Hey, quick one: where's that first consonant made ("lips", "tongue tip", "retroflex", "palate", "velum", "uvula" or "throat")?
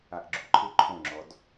throat